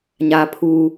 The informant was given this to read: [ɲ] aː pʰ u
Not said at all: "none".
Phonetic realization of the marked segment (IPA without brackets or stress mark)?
ɲ